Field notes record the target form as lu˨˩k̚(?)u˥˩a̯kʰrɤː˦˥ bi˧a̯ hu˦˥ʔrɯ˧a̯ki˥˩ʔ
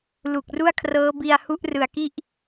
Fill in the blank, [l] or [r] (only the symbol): r